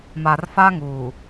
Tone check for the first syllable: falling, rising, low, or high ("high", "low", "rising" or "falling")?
low